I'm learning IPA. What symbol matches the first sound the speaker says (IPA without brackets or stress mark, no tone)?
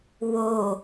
w